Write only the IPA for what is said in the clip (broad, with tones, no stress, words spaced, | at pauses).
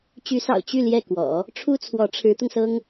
t͡ɕy˧˥sɑ̰˨˩ʊ̯ t͡ɕy˥˧ ljɛ˥˩kwɔ̰˨˩˦ | ʈ͡ʂʰu˥t͡sʰwɔ˧˥ ʈ͡ʂʰɻ̩˧˥t̪ʊ˧ŋsɤ˥ŋ